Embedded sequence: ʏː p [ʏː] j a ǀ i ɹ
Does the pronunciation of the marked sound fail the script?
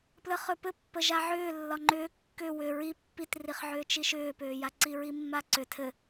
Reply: no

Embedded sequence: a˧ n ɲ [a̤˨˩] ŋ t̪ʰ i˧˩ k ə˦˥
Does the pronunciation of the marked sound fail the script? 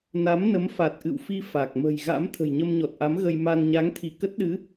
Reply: yes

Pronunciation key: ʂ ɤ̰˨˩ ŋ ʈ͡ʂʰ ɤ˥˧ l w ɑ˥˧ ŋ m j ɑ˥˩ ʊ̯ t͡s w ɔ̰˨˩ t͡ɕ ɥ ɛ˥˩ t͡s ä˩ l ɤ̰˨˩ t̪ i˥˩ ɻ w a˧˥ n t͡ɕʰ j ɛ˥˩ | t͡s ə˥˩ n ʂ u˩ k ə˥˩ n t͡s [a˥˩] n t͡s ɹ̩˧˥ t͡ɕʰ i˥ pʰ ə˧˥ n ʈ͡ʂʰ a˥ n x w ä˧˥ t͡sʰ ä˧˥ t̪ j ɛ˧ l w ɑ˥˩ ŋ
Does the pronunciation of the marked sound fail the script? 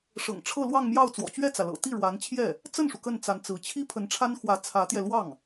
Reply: yes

